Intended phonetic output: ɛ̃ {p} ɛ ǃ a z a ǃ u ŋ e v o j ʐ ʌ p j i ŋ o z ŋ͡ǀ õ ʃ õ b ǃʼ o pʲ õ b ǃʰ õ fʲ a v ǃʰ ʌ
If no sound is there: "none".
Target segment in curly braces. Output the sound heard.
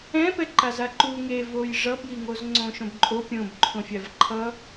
p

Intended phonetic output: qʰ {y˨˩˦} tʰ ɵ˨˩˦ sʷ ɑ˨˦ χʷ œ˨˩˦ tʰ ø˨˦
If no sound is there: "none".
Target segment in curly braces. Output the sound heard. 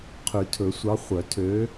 y˨˩˦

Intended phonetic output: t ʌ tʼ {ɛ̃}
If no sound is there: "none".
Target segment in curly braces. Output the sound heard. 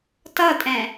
ɛ̃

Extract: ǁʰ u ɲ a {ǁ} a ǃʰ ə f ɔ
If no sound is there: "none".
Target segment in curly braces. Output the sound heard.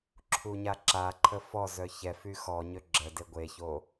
ǁ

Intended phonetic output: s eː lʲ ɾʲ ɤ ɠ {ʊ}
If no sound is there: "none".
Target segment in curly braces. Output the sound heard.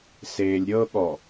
ɔ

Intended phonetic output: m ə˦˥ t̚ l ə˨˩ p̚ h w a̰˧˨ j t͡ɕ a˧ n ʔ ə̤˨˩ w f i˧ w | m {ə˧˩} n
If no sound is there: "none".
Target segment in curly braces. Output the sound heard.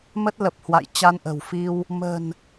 ə̤˨˩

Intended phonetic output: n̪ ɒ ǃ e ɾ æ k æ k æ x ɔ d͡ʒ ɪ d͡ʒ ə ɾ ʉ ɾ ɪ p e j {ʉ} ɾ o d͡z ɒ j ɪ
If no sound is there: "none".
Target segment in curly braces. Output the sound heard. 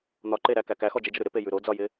ʉ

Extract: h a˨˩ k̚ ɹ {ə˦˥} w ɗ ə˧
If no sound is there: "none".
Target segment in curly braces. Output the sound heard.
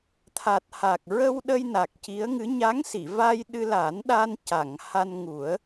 ə˧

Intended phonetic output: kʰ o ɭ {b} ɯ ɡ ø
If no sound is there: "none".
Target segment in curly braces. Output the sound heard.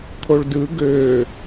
d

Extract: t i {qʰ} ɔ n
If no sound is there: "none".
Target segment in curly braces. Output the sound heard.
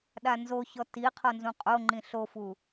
qʰ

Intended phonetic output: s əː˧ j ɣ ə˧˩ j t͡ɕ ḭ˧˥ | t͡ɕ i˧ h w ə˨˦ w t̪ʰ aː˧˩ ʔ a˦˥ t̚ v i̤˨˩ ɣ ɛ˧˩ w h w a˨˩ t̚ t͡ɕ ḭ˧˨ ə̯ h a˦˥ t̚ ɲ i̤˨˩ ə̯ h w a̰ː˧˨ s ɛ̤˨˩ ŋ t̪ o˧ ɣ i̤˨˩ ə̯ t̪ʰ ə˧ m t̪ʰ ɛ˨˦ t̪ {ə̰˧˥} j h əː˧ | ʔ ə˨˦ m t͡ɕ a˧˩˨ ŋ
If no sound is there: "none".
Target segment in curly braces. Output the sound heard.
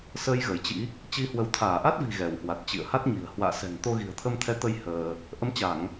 ə˧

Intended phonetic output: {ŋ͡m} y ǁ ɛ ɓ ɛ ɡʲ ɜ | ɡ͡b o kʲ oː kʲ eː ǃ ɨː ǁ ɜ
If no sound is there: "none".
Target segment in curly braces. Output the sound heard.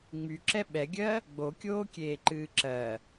ŋ͡m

